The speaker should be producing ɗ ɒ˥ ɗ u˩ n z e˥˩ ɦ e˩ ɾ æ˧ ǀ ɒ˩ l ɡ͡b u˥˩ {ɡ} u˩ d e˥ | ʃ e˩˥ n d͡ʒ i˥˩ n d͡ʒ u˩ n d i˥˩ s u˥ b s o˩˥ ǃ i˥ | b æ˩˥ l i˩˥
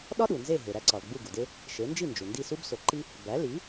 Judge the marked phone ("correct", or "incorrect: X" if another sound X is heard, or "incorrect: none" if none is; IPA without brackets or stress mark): correct